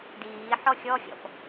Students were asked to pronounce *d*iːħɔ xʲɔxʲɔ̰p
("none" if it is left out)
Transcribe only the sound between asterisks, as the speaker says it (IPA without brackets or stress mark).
d